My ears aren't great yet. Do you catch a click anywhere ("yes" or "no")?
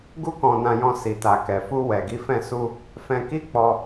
no